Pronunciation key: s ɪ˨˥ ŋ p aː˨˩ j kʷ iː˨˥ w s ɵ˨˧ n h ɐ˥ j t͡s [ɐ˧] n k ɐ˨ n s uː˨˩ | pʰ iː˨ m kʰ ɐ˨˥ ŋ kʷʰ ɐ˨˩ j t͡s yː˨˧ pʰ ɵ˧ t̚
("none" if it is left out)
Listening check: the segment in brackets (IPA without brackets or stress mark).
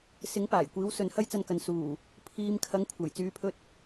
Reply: ɐ˧